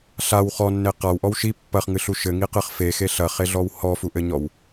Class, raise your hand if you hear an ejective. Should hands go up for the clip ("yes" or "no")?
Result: no